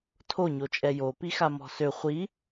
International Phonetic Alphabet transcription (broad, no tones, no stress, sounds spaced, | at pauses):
tʰ o ɲ o t͡ʃʼ ɛ j o p i x a m ɔ̤ s ø χʷ i